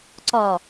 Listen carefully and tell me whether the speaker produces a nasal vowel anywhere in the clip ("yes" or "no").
no